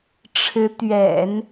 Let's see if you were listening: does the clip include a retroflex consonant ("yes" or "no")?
yes